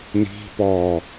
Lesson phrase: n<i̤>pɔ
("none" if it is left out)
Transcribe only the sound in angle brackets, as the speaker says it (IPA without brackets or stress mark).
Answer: i̤